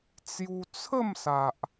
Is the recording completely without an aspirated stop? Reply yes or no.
no